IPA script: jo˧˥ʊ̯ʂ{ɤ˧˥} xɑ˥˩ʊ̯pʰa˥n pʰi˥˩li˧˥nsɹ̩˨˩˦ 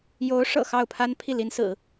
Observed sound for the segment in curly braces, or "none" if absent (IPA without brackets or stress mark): ɤ̰˨˩